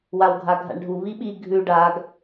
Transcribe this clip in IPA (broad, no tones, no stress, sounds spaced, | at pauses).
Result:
w a w ɡʱ a ɡʱ a̰ ɳ ɖʱ u β i ɓ i ɡʱ ʉ ɖ a ɡ